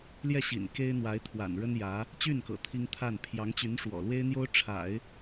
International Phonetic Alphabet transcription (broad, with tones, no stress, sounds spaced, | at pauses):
l j ɛ˥˩ ɕ ḭ˨˩ n k e˥ ɪ̯ n̪ w a˧˥ ɪ̯ t̪ʰ w a̰˨˩ n ɻ ə˥ n j ä˧˥ | t͡ɕ y˥˩ n k ɤ̰˨˩ t̪ʰ i˥ ŋ t̪ʰ a˥˩ n pʰ j ɑ˧˥ ŋ t͡ɕ y˧˥ n ʂ w ɔ̰˨˩ l w e˥ ɪ̯ n̪ j o˥ ʊ̯ ʈ͡ʂʰ a̰˨˩˦ ɪ̯